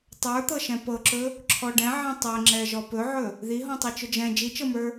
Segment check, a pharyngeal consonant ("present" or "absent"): present